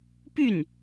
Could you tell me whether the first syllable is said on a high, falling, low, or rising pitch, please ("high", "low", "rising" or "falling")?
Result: falling